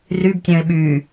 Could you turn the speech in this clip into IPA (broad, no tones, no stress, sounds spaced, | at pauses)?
r y b tʲ œ̃ ɪ̯ ɓ y